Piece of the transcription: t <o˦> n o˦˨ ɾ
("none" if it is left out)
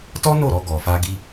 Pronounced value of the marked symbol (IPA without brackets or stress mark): ɔ˦